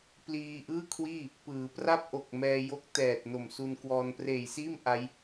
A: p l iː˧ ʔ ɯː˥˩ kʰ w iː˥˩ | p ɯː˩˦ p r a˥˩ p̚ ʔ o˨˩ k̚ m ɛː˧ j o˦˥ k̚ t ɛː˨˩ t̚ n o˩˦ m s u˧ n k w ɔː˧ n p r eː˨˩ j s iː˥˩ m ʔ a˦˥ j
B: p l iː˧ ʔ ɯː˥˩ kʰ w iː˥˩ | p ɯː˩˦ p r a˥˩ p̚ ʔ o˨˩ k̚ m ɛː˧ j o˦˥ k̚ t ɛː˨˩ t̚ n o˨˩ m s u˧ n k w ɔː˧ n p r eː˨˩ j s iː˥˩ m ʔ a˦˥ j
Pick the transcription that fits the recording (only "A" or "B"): B